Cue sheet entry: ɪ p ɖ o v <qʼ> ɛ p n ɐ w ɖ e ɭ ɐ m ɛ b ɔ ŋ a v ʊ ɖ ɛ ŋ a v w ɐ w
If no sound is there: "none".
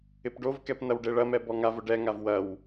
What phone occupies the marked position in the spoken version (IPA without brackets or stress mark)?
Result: k